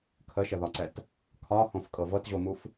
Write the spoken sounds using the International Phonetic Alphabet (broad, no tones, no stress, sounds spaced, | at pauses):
kʰ ə ʃ ə ð ɒ ǀ ɛ t | kʰ ɒ h õ f kʼ ɤ v ɤ t ʑ o m u f